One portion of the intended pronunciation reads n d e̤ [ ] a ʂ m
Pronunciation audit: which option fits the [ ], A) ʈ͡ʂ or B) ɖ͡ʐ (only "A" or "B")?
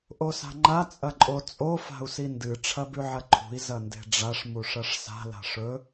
B